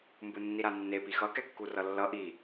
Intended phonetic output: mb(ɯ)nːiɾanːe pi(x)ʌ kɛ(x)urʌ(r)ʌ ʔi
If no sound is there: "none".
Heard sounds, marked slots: ɯ, x, kː, lː

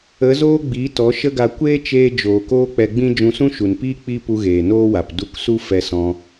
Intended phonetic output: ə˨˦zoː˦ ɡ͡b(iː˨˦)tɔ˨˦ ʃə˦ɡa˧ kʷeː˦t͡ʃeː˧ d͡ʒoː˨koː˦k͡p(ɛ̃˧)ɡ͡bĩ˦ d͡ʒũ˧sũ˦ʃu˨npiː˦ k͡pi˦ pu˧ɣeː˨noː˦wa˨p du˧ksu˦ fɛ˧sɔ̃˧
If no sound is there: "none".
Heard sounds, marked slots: iː˨˦, ɛ˧

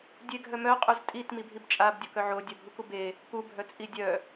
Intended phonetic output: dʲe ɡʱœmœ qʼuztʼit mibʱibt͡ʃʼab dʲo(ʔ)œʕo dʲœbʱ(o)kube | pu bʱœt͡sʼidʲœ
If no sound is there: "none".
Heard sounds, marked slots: k, u

